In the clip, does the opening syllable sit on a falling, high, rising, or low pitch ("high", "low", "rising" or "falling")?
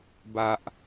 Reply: low